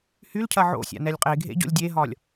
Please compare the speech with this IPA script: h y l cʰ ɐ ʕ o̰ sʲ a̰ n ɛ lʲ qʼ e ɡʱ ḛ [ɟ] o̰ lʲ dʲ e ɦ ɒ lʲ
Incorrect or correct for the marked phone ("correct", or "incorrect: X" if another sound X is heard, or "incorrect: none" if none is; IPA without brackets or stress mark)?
correct